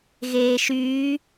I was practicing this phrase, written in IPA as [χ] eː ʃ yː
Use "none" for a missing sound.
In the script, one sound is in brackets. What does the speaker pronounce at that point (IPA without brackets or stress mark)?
ɣ